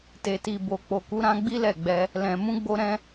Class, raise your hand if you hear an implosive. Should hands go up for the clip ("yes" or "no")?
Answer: no